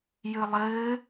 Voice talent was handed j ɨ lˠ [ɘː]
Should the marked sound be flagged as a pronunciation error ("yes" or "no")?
no